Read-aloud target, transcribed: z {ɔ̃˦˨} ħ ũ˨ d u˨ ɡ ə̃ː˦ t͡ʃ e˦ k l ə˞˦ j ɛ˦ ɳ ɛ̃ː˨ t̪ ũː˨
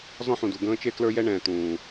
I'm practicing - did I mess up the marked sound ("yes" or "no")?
yes